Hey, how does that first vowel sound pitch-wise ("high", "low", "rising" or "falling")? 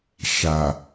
low